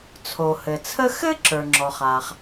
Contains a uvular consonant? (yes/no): yes